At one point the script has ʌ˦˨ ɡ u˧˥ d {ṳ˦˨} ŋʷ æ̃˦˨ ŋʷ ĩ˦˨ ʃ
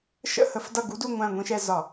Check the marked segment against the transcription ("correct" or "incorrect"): incorrect